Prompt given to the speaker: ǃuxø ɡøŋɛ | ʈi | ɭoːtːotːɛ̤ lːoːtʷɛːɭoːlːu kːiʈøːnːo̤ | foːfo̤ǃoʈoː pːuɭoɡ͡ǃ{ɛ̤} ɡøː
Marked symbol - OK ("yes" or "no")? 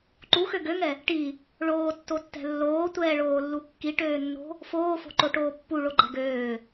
yes